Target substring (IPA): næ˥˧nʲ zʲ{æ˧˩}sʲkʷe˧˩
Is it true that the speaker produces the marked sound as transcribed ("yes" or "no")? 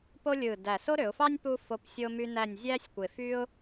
no